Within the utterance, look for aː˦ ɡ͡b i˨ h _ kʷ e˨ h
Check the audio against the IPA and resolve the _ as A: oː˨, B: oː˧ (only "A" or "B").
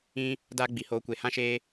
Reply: B